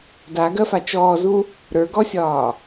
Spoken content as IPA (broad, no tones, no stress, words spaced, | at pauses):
daɡɜfa t͡ʃɔːzu | ɾə˞ɡɔsʲɒː